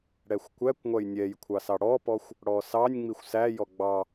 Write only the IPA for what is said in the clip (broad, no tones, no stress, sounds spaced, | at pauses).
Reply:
ɽ ɛ xʷ kʷ æ kʷ ŋʷ æ j nʲ ɛ j kʷʰ ɑ s ɑ ɽ ɔ p ɔ xʷ | ɽ ɔ s ɑ nʲ ŋ͡m i xʷ s æ j ɔ ɡ͡b ɑ